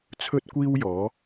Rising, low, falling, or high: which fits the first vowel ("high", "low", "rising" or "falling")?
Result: high